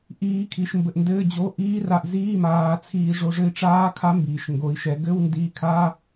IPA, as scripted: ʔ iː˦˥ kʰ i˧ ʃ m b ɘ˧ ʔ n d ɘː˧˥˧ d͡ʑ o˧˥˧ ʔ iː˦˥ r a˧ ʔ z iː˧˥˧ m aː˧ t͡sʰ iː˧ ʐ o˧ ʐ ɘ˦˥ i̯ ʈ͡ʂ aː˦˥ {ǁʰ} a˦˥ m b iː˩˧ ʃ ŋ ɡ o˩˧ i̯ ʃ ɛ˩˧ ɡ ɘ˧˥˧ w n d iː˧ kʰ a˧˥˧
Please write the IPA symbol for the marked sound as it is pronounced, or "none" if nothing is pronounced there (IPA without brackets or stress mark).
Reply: kʰ